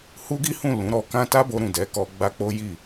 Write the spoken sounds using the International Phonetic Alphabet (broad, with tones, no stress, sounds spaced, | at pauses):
h u˦ ɡ i˦ h ũ˦˨ l ũ˨˦ ɾ ɔ˧ k ã˦ t a˦ b o˧ ɾ ũ˨ d ɛ˨˦ k ɔ˧ ɡ͡b a˦ k͡p o˦ j i˦˨